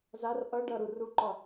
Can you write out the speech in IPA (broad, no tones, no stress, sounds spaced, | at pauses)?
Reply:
z a r ʔ ʌ ɖ ʌ ɾ u r u ǃ ɒ